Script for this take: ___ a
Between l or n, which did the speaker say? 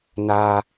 n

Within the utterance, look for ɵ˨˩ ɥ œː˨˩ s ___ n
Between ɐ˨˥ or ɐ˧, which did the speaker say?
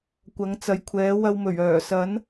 ɐ˨˥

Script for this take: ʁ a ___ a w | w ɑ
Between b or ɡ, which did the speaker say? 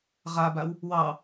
b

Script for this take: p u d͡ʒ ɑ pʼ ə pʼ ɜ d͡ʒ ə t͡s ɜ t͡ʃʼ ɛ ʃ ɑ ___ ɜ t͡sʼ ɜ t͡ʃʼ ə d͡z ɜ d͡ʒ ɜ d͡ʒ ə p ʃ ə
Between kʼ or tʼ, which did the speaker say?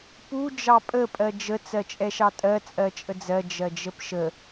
tʼ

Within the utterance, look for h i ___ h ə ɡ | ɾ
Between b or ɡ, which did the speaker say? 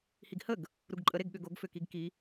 ɡ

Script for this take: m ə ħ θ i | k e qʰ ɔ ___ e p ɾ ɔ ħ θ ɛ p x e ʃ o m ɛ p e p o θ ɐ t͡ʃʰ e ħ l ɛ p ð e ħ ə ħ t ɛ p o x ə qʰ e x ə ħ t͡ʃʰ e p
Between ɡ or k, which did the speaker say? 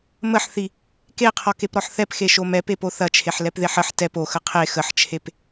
k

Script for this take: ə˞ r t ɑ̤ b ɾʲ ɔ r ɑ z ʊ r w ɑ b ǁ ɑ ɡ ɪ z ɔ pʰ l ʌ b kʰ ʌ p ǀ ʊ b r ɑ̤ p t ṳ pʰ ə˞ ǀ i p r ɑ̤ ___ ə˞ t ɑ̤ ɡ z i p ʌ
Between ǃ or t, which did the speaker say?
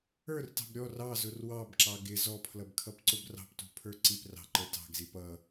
ǃ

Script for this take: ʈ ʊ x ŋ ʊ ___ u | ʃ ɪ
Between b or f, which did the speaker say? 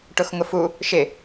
f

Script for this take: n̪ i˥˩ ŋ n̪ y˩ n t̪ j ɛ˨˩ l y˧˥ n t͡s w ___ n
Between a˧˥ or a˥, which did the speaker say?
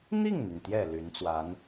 a˧˥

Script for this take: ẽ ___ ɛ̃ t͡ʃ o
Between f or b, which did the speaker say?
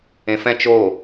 f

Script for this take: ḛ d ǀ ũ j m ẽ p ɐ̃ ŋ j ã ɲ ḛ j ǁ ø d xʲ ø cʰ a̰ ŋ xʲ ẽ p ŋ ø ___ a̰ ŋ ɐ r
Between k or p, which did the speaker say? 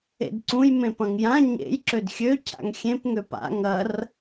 p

